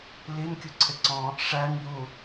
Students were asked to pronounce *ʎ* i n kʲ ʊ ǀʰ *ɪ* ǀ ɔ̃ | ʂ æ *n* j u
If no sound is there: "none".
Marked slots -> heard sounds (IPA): l, ɪ, n

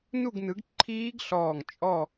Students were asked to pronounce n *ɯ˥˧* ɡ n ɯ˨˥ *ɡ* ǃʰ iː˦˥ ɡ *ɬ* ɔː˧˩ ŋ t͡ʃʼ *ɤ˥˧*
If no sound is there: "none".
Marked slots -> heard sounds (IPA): u˥˧, ɡ, ɬ, ɔ˥˧

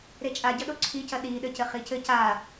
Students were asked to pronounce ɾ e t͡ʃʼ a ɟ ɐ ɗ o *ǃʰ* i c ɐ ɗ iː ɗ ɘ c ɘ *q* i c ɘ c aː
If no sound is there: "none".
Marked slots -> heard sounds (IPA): ǀʰ, χ

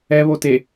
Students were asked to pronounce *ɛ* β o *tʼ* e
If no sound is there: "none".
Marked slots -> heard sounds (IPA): ɛ, t

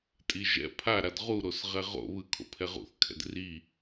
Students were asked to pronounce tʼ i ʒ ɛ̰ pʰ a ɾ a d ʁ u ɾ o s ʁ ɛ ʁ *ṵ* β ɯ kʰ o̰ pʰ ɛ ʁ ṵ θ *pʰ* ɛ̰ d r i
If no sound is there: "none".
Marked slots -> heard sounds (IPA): o̰, kʰ

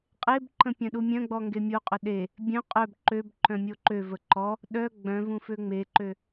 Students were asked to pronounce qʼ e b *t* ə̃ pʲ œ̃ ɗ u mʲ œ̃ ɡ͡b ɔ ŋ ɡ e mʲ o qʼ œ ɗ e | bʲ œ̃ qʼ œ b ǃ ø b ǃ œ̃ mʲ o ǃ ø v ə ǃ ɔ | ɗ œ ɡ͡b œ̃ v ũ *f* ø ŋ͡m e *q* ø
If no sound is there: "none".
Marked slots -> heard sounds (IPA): ǃ, f, ǃ

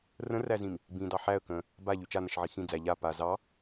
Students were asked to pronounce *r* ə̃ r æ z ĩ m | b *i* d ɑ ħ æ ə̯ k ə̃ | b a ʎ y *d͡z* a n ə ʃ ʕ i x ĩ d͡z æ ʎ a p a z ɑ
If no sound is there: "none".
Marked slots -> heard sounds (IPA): r, ĩ, t͡ʃ

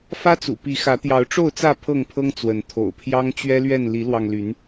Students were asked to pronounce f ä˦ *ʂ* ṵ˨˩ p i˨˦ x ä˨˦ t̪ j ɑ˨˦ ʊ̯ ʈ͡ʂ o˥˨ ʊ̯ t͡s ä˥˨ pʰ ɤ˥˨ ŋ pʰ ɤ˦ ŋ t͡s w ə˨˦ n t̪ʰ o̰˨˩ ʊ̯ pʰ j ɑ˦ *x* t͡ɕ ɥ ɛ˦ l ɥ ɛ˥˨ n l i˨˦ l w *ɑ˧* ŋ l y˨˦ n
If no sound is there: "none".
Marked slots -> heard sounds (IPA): t͡s, ŋ, ɑ˧

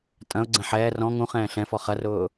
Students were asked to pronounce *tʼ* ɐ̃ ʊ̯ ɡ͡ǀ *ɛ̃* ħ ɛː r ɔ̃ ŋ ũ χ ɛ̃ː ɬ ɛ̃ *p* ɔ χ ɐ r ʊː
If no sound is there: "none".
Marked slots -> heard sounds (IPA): tʼ, ɛ̃, f

